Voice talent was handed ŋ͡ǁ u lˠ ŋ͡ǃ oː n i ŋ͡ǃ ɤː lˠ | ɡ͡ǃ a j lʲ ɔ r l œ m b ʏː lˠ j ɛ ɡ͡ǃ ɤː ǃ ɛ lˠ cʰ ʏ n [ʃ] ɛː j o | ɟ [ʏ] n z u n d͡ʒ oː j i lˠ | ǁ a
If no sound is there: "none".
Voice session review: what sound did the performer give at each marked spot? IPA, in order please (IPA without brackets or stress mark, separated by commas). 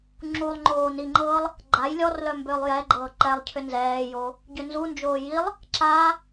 z, ʏ